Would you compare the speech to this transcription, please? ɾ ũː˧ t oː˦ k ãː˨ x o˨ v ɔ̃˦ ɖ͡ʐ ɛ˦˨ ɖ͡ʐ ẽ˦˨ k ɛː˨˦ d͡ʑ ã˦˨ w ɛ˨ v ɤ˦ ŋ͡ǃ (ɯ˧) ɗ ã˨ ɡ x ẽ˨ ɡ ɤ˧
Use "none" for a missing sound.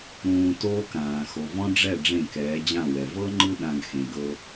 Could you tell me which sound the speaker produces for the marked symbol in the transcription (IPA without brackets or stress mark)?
ɯ˧